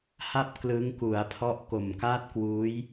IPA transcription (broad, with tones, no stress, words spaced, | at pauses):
ha˥˩p̚ klɯ˦˥ŋku˩˦a̯pʰɔ˦˥ʔ ko˨˩mka˥˩t̚kwuː˦˥j